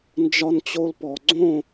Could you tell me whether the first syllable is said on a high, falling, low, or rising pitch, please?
high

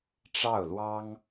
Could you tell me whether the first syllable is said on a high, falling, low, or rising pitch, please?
falling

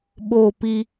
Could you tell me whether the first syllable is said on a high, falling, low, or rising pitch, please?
falling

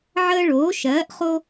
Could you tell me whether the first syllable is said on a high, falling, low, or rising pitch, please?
high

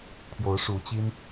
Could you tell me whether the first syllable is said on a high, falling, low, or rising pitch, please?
rising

